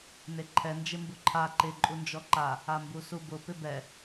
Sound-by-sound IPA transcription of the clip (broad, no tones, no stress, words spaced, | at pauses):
neǃʰɛ nd͡ʒɪmbuǃʰa ǃɪ ǃʼund͡ʒɔǃa | ambusubʊ pɪbɛ